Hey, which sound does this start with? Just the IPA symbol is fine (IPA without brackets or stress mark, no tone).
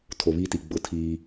tʰ